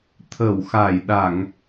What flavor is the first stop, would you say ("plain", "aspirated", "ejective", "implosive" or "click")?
aspirated